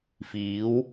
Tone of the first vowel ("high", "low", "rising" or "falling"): rising